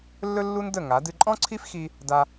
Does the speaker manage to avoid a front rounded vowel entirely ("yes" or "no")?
yes